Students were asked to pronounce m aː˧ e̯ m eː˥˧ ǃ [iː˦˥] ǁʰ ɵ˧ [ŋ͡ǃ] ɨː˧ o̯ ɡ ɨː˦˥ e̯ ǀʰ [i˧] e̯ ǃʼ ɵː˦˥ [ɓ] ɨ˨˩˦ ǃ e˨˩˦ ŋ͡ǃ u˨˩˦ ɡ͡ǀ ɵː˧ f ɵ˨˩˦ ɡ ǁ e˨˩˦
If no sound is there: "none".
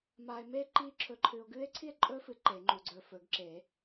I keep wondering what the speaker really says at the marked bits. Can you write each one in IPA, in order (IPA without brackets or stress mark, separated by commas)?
iː˦˥, ǃʰ, i˥˧, f